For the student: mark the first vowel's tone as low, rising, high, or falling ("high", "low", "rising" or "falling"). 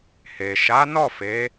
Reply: low